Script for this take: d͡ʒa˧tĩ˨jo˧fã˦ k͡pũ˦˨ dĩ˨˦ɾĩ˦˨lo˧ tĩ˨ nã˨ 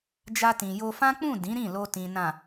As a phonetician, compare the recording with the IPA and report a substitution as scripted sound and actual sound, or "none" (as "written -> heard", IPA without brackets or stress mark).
none